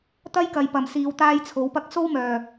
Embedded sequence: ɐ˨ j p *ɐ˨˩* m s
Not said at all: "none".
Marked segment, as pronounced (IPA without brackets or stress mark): ɐ˨˩